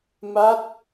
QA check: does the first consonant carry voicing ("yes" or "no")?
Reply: yes